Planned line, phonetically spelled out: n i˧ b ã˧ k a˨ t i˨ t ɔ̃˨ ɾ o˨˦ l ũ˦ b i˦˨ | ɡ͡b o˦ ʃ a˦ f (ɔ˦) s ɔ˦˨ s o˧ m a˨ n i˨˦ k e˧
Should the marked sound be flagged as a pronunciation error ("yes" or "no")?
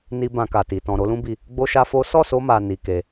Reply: yes